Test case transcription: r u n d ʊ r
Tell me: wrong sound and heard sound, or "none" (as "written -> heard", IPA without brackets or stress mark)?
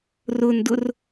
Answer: u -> ʊ